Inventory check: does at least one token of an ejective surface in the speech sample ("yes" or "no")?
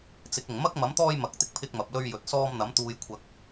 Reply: no